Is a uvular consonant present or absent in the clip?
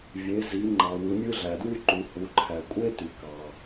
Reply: absent